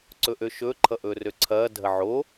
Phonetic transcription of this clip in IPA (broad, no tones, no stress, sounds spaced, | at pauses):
ǀ ɵ ʔ ø ʃ ɵ ǃʰ ʌ ʔ ɵː r ø ǀʰ ɐː dʱ ɐ ʕ o